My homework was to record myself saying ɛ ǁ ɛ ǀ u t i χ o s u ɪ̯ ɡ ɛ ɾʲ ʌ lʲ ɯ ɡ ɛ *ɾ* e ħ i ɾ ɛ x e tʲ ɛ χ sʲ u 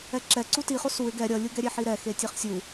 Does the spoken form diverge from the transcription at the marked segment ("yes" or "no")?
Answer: yes